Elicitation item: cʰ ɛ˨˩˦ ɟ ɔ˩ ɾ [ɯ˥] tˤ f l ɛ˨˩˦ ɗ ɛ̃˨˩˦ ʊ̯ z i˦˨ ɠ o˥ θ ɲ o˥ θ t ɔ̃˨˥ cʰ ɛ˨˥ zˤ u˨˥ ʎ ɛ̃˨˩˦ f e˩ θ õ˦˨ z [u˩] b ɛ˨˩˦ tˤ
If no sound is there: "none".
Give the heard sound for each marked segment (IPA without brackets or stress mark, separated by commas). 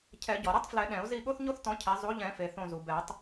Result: ɯ˥, u˩